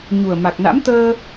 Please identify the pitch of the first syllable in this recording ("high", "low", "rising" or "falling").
low